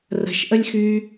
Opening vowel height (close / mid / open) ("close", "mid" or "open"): mid